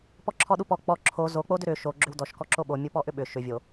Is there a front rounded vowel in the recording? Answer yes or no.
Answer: yes